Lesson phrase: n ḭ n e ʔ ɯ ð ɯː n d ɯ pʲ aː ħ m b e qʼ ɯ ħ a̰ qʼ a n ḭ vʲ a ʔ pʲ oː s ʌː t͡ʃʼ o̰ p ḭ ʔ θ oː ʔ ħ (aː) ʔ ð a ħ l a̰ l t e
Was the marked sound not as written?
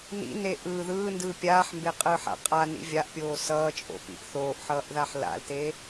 yes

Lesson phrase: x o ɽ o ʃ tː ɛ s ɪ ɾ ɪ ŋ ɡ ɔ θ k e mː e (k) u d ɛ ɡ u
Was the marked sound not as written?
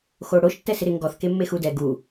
yes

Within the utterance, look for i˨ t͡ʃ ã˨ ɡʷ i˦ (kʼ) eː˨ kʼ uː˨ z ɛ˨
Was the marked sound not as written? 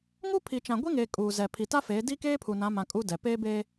yes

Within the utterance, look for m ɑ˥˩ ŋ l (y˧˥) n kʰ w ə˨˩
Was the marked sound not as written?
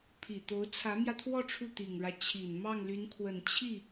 no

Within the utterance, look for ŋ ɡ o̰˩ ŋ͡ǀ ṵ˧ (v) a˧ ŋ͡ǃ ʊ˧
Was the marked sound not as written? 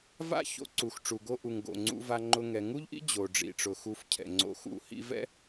no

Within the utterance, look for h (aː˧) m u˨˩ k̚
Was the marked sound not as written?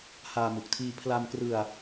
no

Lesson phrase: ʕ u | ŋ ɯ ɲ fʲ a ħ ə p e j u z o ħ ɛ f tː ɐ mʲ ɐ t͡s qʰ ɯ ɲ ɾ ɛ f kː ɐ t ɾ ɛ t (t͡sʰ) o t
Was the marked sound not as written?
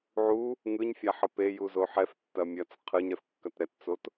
yes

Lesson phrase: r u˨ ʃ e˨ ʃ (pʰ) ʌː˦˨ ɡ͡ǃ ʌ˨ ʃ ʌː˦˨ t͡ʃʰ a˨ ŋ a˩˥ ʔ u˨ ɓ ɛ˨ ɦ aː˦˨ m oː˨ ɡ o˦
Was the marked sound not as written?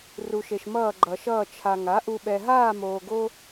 yes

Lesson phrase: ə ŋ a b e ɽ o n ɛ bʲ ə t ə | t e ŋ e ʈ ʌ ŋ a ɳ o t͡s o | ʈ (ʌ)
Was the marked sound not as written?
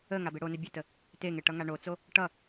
no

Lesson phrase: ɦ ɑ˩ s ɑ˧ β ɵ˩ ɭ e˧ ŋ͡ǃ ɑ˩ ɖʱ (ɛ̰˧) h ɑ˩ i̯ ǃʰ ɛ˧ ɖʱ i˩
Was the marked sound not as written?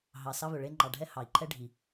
yes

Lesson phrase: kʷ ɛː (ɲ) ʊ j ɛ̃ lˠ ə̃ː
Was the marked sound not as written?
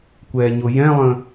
no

